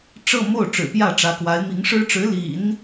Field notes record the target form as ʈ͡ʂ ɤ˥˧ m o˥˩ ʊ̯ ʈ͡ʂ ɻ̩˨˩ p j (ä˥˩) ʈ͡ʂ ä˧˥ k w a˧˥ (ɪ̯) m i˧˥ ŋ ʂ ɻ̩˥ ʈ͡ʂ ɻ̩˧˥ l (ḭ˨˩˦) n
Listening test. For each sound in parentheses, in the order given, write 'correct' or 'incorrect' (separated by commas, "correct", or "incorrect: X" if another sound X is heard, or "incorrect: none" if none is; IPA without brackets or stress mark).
correct, correct, correct